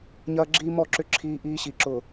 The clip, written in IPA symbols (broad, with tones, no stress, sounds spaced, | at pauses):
ɲ ɐː˦ ɡ͡ǁ iː˦ m ɔ˦˨ ǁ ʏ˦ ǁʰ iː˦ ʔ iː˦ ɕ i˨ ǁ ʊ˨